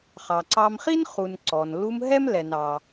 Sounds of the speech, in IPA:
χ ɑ˩ ǀ ɑ˧ m χ i˥ n χ u˩ n ǀ ɔ˩ n l u˧ m ɦ ɛ˥ m l ɛ˩ n ɑ˩

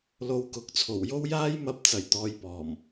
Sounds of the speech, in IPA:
l o˧ w k ʊ˨˥ k̚ t͡sʰ o˨˩ w j o˥ w j aː˥ j m ɐ˧ p̚ t͡s ɐ˨˩ j t̪ ɔː˨˧ j p ɔː˨˩ m

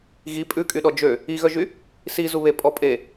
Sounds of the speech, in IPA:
ɣ i pʼ ʉ kʼ y ɗ ɔ d͡ʒ ø | i ɣ œ ʒ y | s i z u β e pʼ ɔ pʼ e

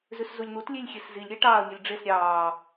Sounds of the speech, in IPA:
z ʉ s z u lʲ n̪ u t lʲ e lʲ xʲ e s z i lʲ ɾʲ æ ʈ ɑː ɐ̯ mʲ œ lʲ ɖ͡ʐ e s ɾʲ ɑː

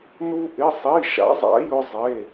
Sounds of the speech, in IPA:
n u˥ ʔ ɪ˧˥˧ sˤ i˧˥˧ ʃ a̰˨˥ zˤ a̰˨˥ j ʊ˥ zˤ e˧˥˧

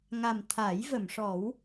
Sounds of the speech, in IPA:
ŋ a˨˩ m t̪ʰ a˨˩˦ j v ə˨˩˨ m ʂ ɔ˨˩˦ w

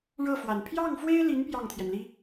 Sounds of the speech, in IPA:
ɻ ɤ˥˩ f w a˨˩ n pʰ j ɑ˥˩ ŋ f w e˥ ɪ̯ l i˧˥ n p j ɑ˥˩ ŋ t̪ʰ j ɛ˩ n l i˥

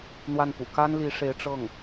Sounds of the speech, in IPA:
n̪ w a˥˩ n p ṵ˨˩ k a˥ n l i˧˥ ʂ e˧˥ ɪ̯ ʈ͡ʂ ɤ˥˩ ŋ

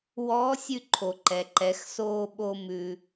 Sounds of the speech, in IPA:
w ɔː˧˥ sʲ ʉ˧ ǃʰ o˩ ǃ ɛ˩ ǃ ɛ˩˧ x s oː˧ ɓ o˧ m ʉ˩

